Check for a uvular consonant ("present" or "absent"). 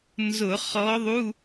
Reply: present